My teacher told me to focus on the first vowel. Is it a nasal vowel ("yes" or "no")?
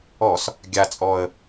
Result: no